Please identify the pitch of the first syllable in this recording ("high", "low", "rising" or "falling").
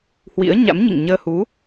rising